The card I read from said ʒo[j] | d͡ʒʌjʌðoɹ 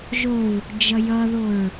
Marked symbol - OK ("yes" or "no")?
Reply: no